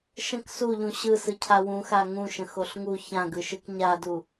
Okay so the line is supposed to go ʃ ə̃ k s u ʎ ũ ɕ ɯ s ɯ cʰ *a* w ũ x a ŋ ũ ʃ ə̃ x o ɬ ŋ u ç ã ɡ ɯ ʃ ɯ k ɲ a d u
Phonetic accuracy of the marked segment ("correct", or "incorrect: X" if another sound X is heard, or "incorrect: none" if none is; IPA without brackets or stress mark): correct